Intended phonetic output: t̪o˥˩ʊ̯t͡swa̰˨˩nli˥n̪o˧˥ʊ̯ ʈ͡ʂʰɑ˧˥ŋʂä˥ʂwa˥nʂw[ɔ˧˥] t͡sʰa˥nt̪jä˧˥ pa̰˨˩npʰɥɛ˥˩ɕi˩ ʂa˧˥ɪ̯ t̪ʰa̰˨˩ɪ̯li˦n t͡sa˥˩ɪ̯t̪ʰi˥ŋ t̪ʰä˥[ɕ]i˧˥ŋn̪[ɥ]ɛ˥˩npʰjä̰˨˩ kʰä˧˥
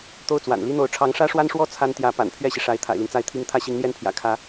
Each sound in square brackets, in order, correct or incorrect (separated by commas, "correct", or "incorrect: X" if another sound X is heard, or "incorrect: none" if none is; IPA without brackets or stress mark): incorrect: ɔ˥, correct, incorrect: j